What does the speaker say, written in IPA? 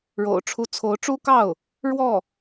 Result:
ɻ o̰˨˩ ʊ̯ ʈ͡ʂʰ u˧˥ t͡sʰ o˧˥ ʊ̯ ʈ͡ʂ u˥ k ɑ˥˩ ʊ̯ | ɻ w ɔ˥˩

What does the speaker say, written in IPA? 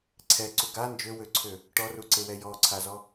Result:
ǀʰ ɛ ǀ u ɡ a n d͡ʒ ø w ø ǀʰ ø | ʈ ɔ r u ǀ e w ɛ j ɔ ǀʰ a z ɔ

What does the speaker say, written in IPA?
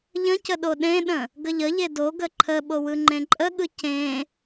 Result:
ʎ ə̃ c ə ɗ o ɗ ẽ ɗ ə̃ | ɡ ə ʎ ə ʎ e d o ɡ ə ǃʰ ə ɓ o w ɯ ŋ͡ǃ ẽ ǃʼ ə ɠ ɯ c ẽ

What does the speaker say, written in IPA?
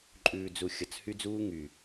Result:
ǃʼ ʉː˨ d͡z u˨ xʲ ʌ˨ t͡s h y˦ d͡z uː˦ ŋ y˨

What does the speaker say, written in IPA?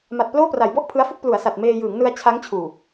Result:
m a˨˩ t̚ p l oː˥˩ p r a˩˦ j b ɔ˥˩ ʔ pʰ ɯ˦˥ a̯ f u˥˩ k̚ p l u˩˦ a̯ s a˨˩ t̚ m eː˧ j ɯː˩˦ ŋ n ɯ˧ a̯ t͡ɕʰ a˦˥ ŋ t͡ɕʰ uː˨˩

